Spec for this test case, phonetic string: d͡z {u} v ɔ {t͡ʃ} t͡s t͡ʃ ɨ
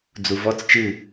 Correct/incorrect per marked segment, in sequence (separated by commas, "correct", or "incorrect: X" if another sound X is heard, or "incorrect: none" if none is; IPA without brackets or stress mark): correct, incorrect: none